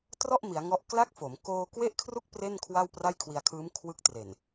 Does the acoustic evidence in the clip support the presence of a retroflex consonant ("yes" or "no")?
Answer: no